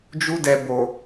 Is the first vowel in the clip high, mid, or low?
high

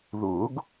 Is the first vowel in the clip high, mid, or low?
high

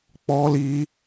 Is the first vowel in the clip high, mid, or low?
mid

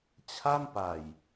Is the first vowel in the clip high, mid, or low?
low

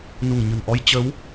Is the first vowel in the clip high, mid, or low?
high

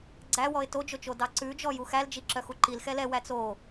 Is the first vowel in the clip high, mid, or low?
low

